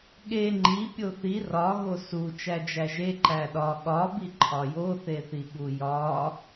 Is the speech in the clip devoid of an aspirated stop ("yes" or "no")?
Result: no